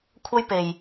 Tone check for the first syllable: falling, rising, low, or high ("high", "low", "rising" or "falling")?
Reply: high